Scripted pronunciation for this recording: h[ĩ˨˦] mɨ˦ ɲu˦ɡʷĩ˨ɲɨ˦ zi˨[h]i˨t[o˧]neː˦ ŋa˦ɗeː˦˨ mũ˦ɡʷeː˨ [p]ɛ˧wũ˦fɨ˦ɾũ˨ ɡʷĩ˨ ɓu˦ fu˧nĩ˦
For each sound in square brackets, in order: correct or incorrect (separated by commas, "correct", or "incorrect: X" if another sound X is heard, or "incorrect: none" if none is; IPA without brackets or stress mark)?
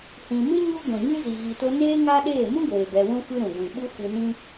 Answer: incorrect: ĩ˨, incorrect: ɣ, correct, incorrect: b